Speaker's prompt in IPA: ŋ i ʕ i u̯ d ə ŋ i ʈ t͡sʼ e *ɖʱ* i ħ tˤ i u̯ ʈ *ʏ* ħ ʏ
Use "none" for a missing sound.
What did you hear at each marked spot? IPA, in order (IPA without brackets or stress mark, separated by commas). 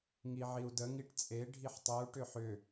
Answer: ɖʱ, ʏ